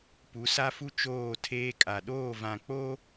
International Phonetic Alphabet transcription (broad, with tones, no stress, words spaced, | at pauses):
pu˨˦sa˦fu˦ t͡ʃoː˦˨tʰeː˦kʼa˨ ɗoː˦˨vã˨k͡po˦